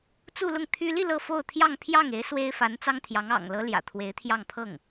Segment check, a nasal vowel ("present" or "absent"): absent